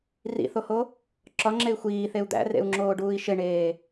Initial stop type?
click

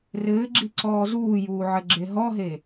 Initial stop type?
click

